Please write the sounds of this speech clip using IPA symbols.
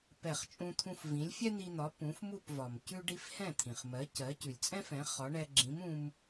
p ɛ˥˩ χ t͡ʃʼ ũ˥ t̪ʰ ũ˥ f v ĩ˩˥ lʲ fʲ ɛ˥ n̪ i˧ n̪ ɒ˩˥ p ũ˩˥ f m u˥˩ p v ɒ˩ m c ʉ˥ ɖ i˥ f h ɛ̃˥˩ t̪ʰ ĩ˩ χ m ɜ˩˥ c ɜ˩˥ c ʉ˩ lʲ t͡sʼ ɛ̃˥ f ɛ̃˩˥ χ ɒ˩˥ ɳ ɛ˧ ɡ͡ǁ ĩ˩˥ m ũ˧ m

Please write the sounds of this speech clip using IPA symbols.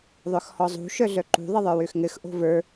ðˤ œ x h ɔ zˤ ṳ ʃ œ ɮ œ ǃ ṳ ðˤ ɘ ðˤ ə˞ w ø x ŋ ɘ x ʔ o̤ v ə˞

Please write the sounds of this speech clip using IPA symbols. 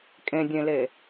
kʼ ẽ dʲ ẽ l e

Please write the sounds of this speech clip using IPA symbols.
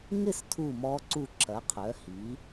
ŋ ɪ˥˨ s tʰ u˥˨ m ɔ˦˥ ǀ u˥˨ ǁ ɐ˨˥ qʰ œ˨˥ h i˨˥

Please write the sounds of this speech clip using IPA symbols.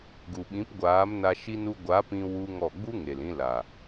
ɡ u˨ ɓ ĩ˨˦ p ɡʷ aː˨˦ m n a˧ ʃ i˦ n u˦ ɡʷ a˨˦ p ĩ˧ w u˦ ŋ ɔ˦˨ ɡ͡b u˦ ŋ e˨ l ĩ˧ l a˨

